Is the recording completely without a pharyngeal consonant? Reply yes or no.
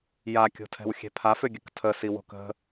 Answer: yes